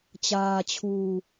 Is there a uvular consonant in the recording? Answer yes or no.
no